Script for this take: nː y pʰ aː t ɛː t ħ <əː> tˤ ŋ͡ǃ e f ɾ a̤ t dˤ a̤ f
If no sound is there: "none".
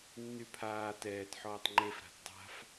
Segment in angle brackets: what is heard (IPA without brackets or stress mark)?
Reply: ɔː